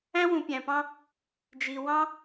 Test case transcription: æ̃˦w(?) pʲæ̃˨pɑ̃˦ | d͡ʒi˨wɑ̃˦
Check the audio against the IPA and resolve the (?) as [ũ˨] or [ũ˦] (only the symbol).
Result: ũ˨